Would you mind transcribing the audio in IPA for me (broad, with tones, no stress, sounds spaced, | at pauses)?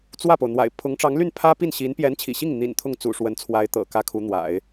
t͡s w ä˥˩ p o˩ ʊ̯ n̪ w a̰˨˩ ɪ̯ pʰ ʊ˧˥ ŋ ʈ͡ʂ ɑ˧˥ ŋ l y˥˩ n pʰ ä˥ p i˥˩ n ɕ i˧˥ n p j ɛ˧˥ n t͡ɕʰ ḭ˨˩ ɕ i˥˩ ŋ n̪ ḭ˨˩ n t̪ʰ ʊ˥˩ ŋ t͡s ṵ˨˩ ʂ w ə˧˥ n t͡sʰ w a˧˥ ɪ̯ t̪ ɤ̰˨˩ k ä˥ kʰ u˧˥ n̪ w a̰˨˩˦ ɪ̯